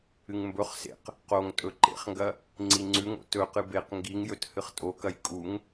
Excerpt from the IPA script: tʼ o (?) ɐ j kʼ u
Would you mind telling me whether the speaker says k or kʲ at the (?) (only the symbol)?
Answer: k